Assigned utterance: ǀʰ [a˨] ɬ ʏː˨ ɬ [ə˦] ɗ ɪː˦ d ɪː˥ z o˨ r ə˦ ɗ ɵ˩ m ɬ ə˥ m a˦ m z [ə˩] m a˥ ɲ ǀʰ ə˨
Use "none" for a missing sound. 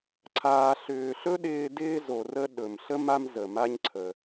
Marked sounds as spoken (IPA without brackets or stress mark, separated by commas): aː˨, ɵ˦, ə˩